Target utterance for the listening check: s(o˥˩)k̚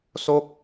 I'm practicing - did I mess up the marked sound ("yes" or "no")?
no